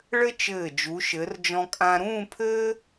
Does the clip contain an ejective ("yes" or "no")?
yes